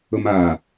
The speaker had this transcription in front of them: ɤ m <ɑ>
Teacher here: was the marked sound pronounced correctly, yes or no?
no